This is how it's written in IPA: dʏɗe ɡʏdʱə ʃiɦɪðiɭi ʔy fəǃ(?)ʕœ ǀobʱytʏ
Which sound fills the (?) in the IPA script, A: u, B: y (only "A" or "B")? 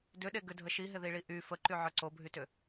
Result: B